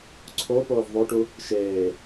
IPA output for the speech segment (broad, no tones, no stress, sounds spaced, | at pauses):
ǀʰ o p oː v ðˤ o ʈ u | ʃ eː